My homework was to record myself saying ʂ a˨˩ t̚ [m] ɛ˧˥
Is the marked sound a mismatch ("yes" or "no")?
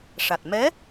no